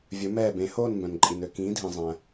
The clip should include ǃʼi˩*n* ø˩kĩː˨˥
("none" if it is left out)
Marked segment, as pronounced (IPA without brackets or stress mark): n